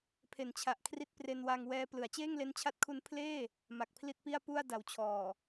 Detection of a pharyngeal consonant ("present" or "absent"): absent